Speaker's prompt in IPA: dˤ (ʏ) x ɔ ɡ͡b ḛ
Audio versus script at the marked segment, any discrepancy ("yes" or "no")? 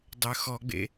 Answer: no